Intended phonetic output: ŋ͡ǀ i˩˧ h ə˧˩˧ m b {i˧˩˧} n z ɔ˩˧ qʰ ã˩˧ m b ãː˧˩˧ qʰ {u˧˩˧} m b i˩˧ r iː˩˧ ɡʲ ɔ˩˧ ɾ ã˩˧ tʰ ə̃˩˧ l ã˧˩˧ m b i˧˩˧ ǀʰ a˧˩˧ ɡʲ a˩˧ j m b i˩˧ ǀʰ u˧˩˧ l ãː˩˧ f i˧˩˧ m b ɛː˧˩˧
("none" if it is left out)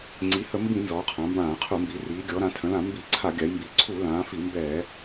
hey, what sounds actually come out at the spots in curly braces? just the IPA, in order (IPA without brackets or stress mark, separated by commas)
ĩ˧˩˧, u˧˩˧